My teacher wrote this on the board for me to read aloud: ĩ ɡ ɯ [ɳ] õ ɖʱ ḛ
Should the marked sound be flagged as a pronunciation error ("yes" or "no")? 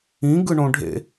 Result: no